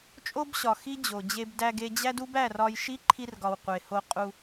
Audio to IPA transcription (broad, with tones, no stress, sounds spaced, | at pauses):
t͡ʃʼ o˦ b ɕ ɒ˨ x i˦ d͡ʑ o˨ d͡ʑ e˧ b d æ˧ ɡ e˧ d͡ʑ æ˦ d u˦ b æ˦˨ r ɒ˧ j ʃ i˦ ǃʰ i˧ r ɡ ɒ˨ w qʷ e˨ h o˧ qʼ u˧